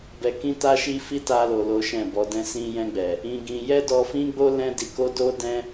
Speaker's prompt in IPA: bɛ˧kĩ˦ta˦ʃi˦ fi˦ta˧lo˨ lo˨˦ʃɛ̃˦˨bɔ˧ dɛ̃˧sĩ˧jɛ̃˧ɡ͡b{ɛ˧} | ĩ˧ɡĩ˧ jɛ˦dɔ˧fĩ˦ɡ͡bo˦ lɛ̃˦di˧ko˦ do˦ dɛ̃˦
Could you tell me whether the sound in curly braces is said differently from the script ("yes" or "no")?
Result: yes